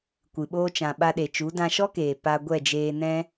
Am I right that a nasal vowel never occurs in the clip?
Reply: no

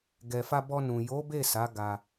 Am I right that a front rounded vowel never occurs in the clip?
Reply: yes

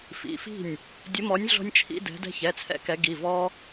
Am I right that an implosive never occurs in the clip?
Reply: yes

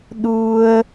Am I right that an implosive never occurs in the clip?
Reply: no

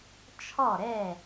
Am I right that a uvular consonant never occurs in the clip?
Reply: yes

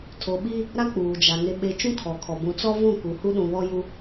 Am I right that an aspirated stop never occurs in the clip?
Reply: no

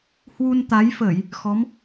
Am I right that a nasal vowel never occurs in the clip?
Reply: yes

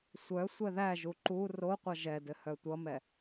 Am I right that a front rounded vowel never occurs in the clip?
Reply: no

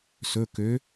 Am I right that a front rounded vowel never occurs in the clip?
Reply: no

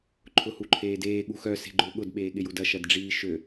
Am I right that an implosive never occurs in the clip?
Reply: no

